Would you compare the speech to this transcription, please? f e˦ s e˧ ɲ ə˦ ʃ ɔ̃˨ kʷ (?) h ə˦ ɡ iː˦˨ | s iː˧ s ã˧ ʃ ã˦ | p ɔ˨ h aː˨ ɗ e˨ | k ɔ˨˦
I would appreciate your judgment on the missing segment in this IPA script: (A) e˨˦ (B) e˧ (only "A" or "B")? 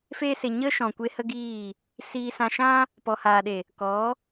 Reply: B